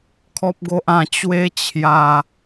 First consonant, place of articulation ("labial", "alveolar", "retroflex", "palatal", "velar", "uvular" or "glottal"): velar